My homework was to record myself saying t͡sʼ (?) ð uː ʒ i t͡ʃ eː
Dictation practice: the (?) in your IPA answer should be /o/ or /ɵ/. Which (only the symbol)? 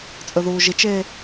ɵ